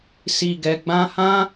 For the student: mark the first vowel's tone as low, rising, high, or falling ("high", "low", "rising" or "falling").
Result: low